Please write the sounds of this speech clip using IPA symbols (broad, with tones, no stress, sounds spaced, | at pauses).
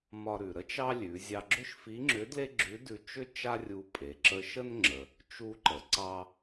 m ɒ˧ ɾ ʉ˩ ɾ ə˥ t͡ʃ ɑ˥ lʲ ʉ˩˧ zʲ ɑ˧ ɡ͡ǁ ʏ˥ ʃ f i˧˥ ŋ͡ǁ ʏ˧˥ d l e˥ ɡ͡ǁ ʉ˧˥ d ʉ˧ t͡ʃ ʏ˥ t͡ʃ a˥ rʲ u˧ pʼ e˩˧ ǁ ə˧ ʃ ə˥ n ŋ͡ǁ ə˩ | t͡ʃ u˧ ǃ ə˩˧ ǀ ɑ˧